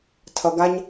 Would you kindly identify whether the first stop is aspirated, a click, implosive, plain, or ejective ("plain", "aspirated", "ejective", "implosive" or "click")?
aspirated